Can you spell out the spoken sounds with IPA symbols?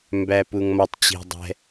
m b æ p u ŋ m ɒ tˤ t͡ɕ i̤ dˤ ɛ̤

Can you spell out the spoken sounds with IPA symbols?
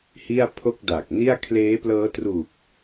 h i˥˩ a̯ pʰ o˥˩ k̚ d a˨˩ k̚ n i˥˩ a̯ kʰ l eː˦˥ p l ɤː˦˥ t r u˨˩ k̚

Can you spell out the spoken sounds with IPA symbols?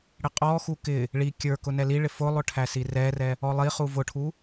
ɽ ɪ qʼ ɔ x u k ɪ | ɭ i kʲ ə˞ k ʊ n ɛ l i ɭ ɪ f ʊ lˠ ʊ ʈʰ æ s i r ɛ r ɛ | ɔ lˠ i χ u v ʊ ʈʰ u

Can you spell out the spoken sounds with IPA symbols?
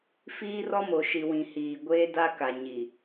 f iː˦ r ɔ˦ m o˨ ʃ i˨ w ĩ˨ h iː˨ ɡʷ eː˦ d a˦ k a˨ ɲ i˨

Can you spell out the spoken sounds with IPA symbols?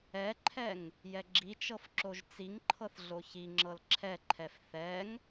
ɛ ǃʰ ɛ ŋ | j ɛ ɡ͡ǁ i t͡ʃ ɤ f ǁ o ʒ t͡s i ŋ ǃʰ ɤ θ ɮ o ç i ŋ͡ǁ ɤ l ǁʰ ɛ ǃʰ ɛ f θ ɛ ŋ

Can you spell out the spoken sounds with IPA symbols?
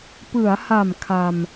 p ɯ˩˦ a̯ h a˨˩ m kʰ a˧ m

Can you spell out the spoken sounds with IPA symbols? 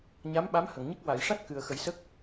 ɲ a˧˥ m ɓ a˧˥ m h ə˨˩˨ ŋ ɲ ə˦˥ k̚ w a˨˩˨ j ʂ a˦˥ t̚ k ɨ˨˩ ə̯ x ə˨˩˦ j s ə˦˥ k̚

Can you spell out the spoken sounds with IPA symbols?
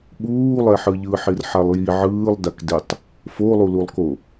ɓ uː lˠ ɛ ħ ɯ ʎ ɯ ħ i r ħ a lˠ j i ʕ ɯː lˠ d a k d e tˤ | f o lˠ u l u lˠ k o

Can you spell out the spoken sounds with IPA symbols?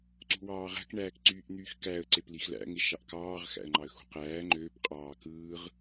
ǀ ṳ w ɑː ʁ æ̤ k ɳ æː k ǀ yː ʔ n̪ yː x k æ ə̯ ǀ e p l i x l æ̰ ŋ e ʃ ɑ ʔ k ɑː ʁ x æ̰ ə̯ ŋ͡ǃ ɑ ə̯ x ṳ q æː ŋ͡ǃ øː p qʼ ɑː k ɯː ʁ

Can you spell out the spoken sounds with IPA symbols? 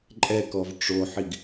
ǃʼ ɛ k ɔ v ʈ͡ʂ o ħ i ɡ

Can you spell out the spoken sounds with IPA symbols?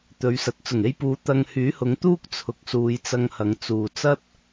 t̪ ɵ˨˧ ɥ s ɐ˨˥ t̚ t͡s ʊ˨˩ ŋ e˧ j p uː˨˧ t̪ ɐ˧ ŋ h yː˨˥ h ʊ˨˧ ŋ t̪ uː˥ k̚ t͡sʰ ʊ˨˥ k̚ s uː˨˧ j t͡s ɐ˧ ŋ h ɐ˨˧ ŋ t͡s uː˨ t͡s ɐ˥ t̚

